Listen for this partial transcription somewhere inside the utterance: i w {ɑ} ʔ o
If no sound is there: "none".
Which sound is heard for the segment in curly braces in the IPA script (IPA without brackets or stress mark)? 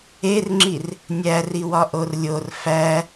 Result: ɒ